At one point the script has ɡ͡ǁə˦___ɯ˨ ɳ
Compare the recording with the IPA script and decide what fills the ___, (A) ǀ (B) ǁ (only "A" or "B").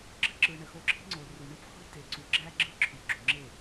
B